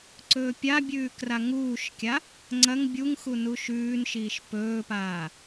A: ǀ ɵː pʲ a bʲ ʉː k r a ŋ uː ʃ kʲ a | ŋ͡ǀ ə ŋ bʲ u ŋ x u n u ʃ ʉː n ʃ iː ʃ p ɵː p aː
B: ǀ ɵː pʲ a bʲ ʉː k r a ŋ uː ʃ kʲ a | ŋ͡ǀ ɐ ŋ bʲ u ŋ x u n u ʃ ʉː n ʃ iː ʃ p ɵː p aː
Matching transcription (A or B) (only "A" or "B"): B